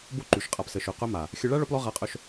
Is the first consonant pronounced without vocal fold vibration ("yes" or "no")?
no